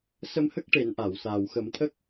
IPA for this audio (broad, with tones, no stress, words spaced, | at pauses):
sə˧mhə˦˥k̚ ʈe˨˩˦nʔa˨˩˨w saː˨˩wxə˨˩˦mt̪ʰə˦˥k̚